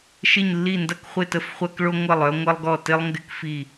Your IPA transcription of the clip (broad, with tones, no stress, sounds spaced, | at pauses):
ʃ ɪ˥˨ ɲ lː i˥˨ n d ɐ˥ k χʷ ɪ˥˨ t ə˥˨ f χʷ ɐ˥ k ɭ o˥ ŋʷ ɐ˥˨ lˠ œ˥ ŋʷ ɐ˥ lˠ ɡ ɔ˥˨ t ɪ˥ lˠ ŋ ɡ ɪ˥ k f i˥˨